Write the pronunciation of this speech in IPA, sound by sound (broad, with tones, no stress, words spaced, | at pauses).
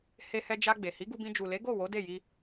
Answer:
he˧hɛ˧d͡ʒa˧ ɡ͡be˨hi˨˦ɡu˧bĩ˧ d͡ʒu˨le˨˦ɡo˦˨ wo˨˦de˦˨ji˧